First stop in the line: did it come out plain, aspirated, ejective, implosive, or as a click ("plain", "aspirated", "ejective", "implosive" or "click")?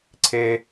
click